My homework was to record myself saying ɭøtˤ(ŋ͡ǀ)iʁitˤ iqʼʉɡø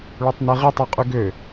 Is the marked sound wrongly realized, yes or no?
yes